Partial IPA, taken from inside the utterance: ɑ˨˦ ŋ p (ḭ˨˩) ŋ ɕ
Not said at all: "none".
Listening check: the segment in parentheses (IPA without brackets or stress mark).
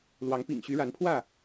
ḭ˨˩